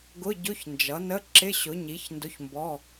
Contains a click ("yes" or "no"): yes